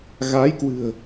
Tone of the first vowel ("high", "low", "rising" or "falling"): rising